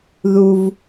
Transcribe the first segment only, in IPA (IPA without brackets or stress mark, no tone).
ð